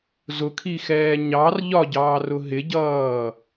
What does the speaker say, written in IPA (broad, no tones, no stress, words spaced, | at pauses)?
zʊkʰixɛː ɲɑr ʎɒɟɑːrʊ ɦɪɟʌː